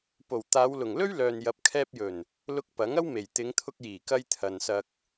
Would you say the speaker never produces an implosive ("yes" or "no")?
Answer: yes